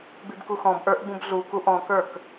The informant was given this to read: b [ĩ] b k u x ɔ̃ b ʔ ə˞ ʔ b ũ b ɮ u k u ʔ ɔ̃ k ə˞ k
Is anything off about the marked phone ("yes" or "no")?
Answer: yes